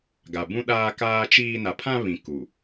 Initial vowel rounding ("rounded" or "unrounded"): unrounded